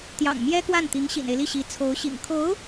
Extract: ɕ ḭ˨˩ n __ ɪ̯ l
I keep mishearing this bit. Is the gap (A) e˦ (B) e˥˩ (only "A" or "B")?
A